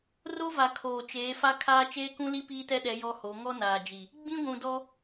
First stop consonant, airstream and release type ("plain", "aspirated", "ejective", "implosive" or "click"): aspirated